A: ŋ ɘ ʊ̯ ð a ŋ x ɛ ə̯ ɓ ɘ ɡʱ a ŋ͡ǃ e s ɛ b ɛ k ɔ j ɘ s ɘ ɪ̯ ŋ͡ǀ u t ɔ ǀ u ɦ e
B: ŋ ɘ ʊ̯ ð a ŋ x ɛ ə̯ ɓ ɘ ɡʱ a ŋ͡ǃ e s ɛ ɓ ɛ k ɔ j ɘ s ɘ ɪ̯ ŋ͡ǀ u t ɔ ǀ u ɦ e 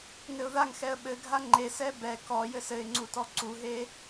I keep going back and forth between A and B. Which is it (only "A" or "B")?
A